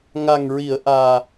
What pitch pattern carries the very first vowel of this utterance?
low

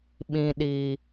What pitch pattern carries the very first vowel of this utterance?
low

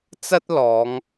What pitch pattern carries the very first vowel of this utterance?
high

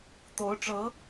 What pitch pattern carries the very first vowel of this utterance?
rising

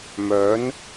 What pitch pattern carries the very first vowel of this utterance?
rising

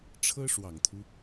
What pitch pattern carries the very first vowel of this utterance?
high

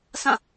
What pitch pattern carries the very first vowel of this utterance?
falling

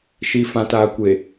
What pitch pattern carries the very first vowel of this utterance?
low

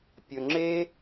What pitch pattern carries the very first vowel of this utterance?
low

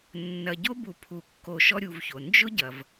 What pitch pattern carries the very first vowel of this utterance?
low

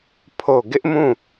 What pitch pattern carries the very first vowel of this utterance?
falling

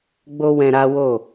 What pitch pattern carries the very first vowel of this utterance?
high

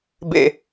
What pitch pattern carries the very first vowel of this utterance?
low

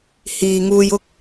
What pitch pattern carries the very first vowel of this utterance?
low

